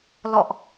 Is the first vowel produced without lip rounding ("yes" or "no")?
no